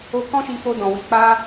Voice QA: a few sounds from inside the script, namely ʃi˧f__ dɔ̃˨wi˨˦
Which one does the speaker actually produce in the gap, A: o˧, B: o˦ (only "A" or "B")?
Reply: A